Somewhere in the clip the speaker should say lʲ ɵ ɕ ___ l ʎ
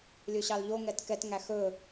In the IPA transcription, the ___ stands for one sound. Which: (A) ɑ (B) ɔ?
A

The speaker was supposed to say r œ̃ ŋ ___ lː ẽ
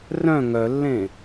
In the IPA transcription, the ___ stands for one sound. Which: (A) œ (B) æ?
A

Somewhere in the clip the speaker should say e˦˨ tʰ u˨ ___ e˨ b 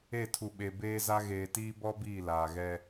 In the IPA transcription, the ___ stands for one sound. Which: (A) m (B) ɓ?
B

